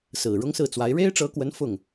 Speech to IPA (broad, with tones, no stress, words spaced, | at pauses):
sɹ̩˨˩ɻʊ˥ŋsɹ̩˥˩t͡swa˧˥ɪ̯ ɻe˥ɪ̯ʈ͡ʂɤ˧˥kwə˧˥n fʊ˥˩ŋ